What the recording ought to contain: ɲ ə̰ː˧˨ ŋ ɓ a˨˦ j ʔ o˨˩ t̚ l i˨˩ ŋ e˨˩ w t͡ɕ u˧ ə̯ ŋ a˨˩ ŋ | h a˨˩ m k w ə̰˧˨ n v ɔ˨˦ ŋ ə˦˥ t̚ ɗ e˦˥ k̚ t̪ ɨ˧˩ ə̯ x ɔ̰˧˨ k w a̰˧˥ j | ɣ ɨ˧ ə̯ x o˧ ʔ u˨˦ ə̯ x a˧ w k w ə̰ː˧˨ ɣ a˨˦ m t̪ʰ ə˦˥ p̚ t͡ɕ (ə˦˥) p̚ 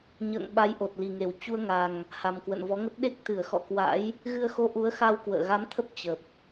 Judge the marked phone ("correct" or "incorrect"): incorrect